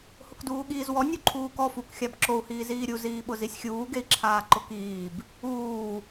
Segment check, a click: present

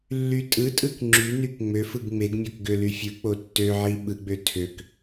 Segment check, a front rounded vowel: present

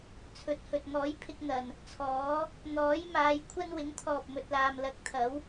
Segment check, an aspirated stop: present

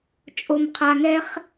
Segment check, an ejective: present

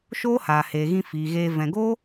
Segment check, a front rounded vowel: absent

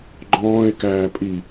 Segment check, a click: present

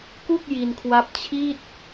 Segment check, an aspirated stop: present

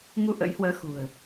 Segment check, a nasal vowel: absent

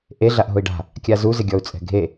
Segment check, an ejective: present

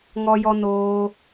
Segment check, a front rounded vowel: absent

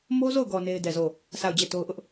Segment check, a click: absent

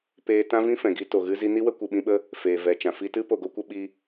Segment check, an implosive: present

